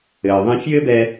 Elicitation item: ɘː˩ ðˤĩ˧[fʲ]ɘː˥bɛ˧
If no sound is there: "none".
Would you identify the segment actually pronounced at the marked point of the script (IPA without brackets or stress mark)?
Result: fʲ